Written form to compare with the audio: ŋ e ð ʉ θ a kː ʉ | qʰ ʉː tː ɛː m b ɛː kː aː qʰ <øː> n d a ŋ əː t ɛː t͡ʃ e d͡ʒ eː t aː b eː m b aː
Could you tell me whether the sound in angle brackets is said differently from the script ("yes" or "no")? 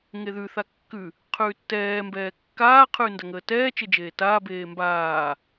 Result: yes